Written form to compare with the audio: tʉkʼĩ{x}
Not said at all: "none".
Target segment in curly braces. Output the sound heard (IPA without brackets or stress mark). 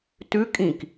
k